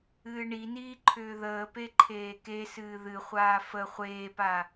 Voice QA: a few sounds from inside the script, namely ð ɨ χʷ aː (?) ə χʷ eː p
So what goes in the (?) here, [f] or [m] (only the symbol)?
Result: f